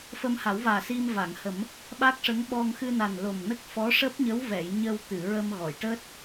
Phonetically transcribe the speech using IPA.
f ə˧ m h a˨˩˦ w v aː˨˩ s i˧ m v a˨˩˨ ŋ h ə˨˩˦ m | ɓ a˦˥ k̚ ʂ ə˧˥ ŋ ɓ ɔ˧ ŋ x ɨ˧ n a˨˩ n l o˨˩ m n ə˦˥ k̚ f ɔ˧˥ ʂ əː˦˥ p̚ ɲ ə˧˥ w v ɛ˨˩˨ j ɲ ə˧ w t̪ ɨ˨˩˨ ɹ ə˧ m ɣ ɔ˨˩˨ j ʈ əː˦˥ t̚

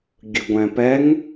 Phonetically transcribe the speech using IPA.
ɡʲ ɯ ɡʷ ɛ̃ p ɛ ŋ

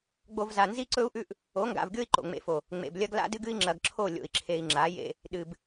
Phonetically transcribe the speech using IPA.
ɡ͡b o˨ v z a˨ n z i˦ ǀ ɵ˦ u̯ ʔ ʉ˦ ʔ | o˨˦ ŋ ɡ a̰˨ v ɡʲ o˦ i̯ ǃ o̰˨ ŋ͡m ḛ˨ f o˨ | ŋ͡m ḛ˨ b lʲ ɐ˦ ɡ l a̰˦ d ɨ˦ ɡ ɨ˦ i̯ ŋ͡ǁ ɐ˨ ɡ ǁʰ o˦˨ lʲ o̰˨ i̯ ǁʰ e˨ i̯ ŋ͡ǁ a˨˦ j ḛ˦ | ɗ ɨ˨ b

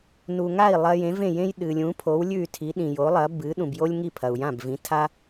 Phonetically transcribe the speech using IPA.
n u˩ ŋ a˥˩ i̯ lˠ ɐ˧ j ẽ˩˥ v ẽ˥˩ j ẽ˥ j ɗ ɨ˩ lʲ ũ˩˥ pʰ o˩˥ w lʲ ʉ˥˩ y̯ tʰ i˩˥ ɗ ĩ˩ j o˩˥ lˠ ɐ˩˥ b ɨ˩˥ ɗ ũ˩ b j o˥ lʲ ŋ i˥˩ pʰ ɐ˩ u̯ j ã˥˩ b v ĩ˩˥ tʰ a˥

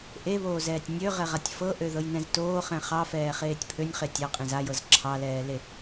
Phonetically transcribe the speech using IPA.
ʔ e β oː z ɛː tʲ nʲ ø ʁ ɛ ʁ a tʲ f ɤ ʔ ø ð ɤ j n ɛ̃ z t oː χ ɛ̃ χ ɑ f ɛː χ eː tʲ pʰ ø nʲ χ e tʲ ɑ qʼ ẽ z a j ɤ z ǁʰ ɑ l ɛː l e

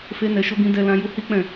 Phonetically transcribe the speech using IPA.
f e˦ n ɛ˧ ʃ o˦ ɡ ĩ˦ d ɛ˦ l ã˦ j u˧ h i˦ k͡p ɛ̃˦˨

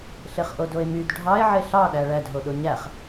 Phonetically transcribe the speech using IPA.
ɬ e χ ʔ o d o e̯ m y d ɖʱ ɑ e̯ ʕ e ɬ ɑ ɗ æ ɭ æ d ɦ o ɗ o ɲ æ χ

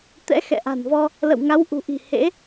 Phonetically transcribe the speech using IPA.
t̪ ɛ̰˧˥ x ɛ̰˧˨ ʔ a̤˨˩ n v ɔ˧ | l ə̰˧˨ w ŋ a˨˦ w ʔ ṳ˨˩ ʔ i̤˨˩ h ḛ˧˥

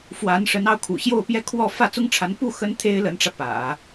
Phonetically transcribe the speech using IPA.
f w a˧˥ n ʂ ə˧˥ n ɑ˥˩ ʊ̯ kʰ ṵ˨˩ ɕ j o˥˩ ʊ̯ p j ɛ˥ kʰ w ɔ˥˧ f ä˥˩ t͡s ʊ˥ ŋ ʈ͡ʂʰ a˧˥ n p u˥˩ x ə˥ n t̪ʰ e˥ ɪ̯ l ə˧˥ n ʈ͡ʂ ä˧ p ä̰˨˩˦

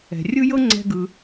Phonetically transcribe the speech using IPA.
ɛ̤˩ rʲ ɯ˥ j ɤ˥ ŋ͡ǀ ɛ̤˧ ɡ ɯ˩

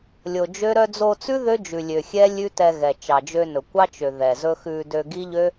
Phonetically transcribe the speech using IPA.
lʲ o˨ d͡ʒ ø˦ ɾ œ˧ d͡z o˧ t͡s ʉ˦ ð ø˦ d͡ʒ ʉ˨ lʲ ø˨ xʲ ɛ˦ lʲ ʉ˦ t ɛ˧ ɣ ɛ˨ t͡ʃ ɑ˨ d͡ʒ ø˧ n ɵ˨ kʷ ɑ˦ t͡ʃ ø˨ ð ɛ˨ z ɵ˦ x ʉ˧ d ø˧ ɡ i˦ ʎ ø˦

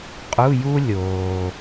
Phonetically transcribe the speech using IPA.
qʼ u˧˥˧ j u˥ lʲ oː˩

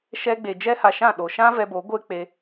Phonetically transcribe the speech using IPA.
ʃ ɛ˧ ɡ͡b e˨ d͡ʒ ɛ˦ h a˧ ʃ ã˦˨ ɗ o˨ ʃ ã˦ v ɛ˧ b o˨˦ ɡʷ e˦ k͡p e˧

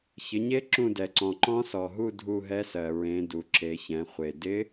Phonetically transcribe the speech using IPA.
ç ɪ˩˧ ɲ e˧˥ ǁ ũ˦˨ d ɛ˩ ǀ ɔ̃˩ ǃ ɔ̃˧˥ s ɔ˩ ɦ u˦˨ dʱ u˦˨ ɦ ɛ˧˥ s ɜ˩ ɹ ẽ˩˧ d u˩ ǁ e˩˧ ç ɛ̃˩˧ χʷ e˩ d ɪ˧˥

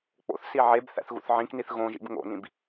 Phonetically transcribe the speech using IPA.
k͡p o̰ θ s i ʕ e b θ æ̰ θ ɣ ṵ θ ʕ ĩ k n i θ ɣ õ ʒ ḭ b ŋ o̰ n ĩ b

